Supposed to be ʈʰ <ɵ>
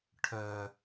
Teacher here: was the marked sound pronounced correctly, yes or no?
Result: no